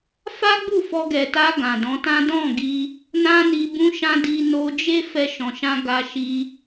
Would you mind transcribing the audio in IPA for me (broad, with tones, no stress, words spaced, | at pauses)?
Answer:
fa˦ɡ͡bu˦˨ fɔ˧ɡɛ˨ta˧ ɡã˨dɔ̃˨˦tã˦ dɔ̃˦˨ɡi˧ | nã˦ni˧bũ˦ʃã˦ di˧no˧d͡ʒe˦ fɛ˦ʃɔ̃˧ʃã˦ ɡa˧ʃi˧